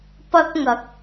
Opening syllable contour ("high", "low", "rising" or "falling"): high